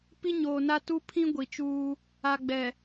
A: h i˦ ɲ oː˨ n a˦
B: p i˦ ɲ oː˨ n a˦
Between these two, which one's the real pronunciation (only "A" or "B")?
B